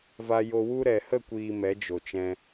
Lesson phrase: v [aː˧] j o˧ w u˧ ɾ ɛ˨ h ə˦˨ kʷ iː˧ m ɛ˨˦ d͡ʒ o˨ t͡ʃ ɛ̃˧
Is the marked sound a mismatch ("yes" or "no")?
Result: yes